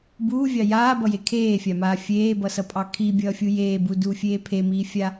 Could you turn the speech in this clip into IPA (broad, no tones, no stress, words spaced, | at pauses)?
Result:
buːvʲɑ jaːbʌje kʰeːfʲamaː fʲeːbʌsʌpʼɑ kʰibʲʌːfʲu jeːbuduːfʲeː pʰemiːfʲa